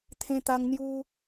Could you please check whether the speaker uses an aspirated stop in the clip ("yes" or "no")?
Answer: yes